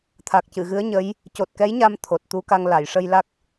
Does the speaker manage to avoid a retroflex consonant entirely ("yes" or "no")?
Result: no